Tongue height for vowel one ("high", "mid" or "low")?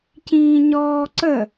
high